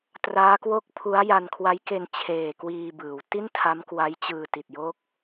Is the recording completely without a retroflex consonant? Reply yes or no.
yes